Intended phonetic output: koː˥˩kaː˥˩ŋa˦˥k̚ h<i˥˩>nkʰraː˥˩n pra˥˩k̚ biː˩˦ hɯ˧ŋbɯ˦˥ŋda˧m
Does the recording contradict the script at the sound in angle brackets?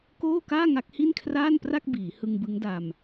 no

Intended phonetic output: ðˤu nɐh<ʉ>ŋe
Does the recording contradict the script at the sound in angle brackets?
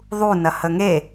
yes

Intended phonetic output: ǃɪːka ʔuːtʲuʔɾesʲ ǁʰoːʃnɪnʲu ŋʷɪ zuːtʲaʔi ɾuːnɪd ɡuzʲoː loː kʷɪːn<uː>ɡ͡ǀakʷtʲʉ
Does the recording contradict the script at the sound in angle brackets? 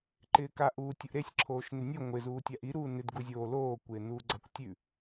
no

